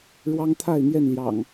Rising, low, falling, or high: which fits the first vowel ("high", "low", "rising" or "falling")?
high